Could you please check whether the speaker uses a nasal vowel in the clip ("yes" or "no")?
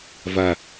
no